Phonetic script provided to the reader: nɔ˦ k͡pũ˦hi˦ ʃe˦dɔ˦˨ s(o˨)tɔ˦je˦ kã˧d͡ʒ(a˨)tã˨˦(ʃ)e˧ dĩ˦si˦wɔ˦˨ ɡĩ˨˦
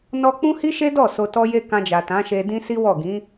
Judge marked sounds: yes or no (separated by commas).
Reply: no, yes, yes